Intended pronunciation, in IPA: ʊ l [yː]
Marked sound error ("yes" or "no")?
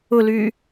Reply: no